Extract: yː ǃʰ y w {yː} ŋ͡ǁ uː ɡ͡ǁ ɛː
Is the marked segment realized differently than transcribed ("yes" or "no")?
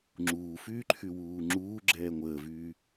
yes